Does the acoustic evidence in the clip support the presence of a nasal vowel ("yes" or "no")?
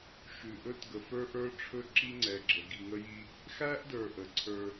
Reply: no